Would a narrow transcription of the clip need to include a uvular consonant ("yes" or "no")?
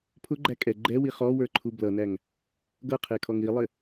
yes